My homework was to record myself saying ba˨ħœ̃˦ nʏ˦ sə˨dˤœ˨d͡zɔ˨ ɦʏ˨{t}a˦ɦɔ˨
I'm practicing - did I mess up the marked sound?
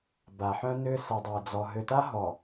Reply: no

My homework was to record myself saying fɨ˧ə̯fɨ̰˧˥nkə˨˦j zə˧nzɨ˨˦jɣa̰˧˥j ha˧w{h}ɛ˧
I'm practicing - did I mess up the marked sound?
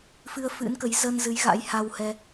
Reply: no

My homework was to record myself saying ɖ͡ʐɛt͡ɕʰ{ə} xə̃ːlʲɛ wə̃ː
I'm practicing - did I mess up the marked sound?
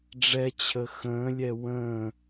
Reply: no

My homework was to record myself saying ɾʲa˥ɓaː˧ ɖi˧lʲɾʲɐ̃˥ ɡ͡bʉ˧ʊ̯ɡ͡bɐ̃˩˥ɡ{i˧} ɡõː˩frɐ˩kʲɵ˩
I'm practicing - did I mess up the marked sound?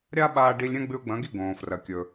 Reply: yes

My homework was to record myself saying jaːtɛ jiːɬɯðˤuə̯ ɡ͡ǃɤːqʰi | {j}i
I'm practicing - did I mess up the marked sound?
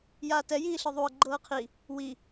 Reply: yes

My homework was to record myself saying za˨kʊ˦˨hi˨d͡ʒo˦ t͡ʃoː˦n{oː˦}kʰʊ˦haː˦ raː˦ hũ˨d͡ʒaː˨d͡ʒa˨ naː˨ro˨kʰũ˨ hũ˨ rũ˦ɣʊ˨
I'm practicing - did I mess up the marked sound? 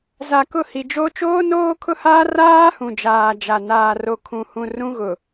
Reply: no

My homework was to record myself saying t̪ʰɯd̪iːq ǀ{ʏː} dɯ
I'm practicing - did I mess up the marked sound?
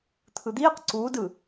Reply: yes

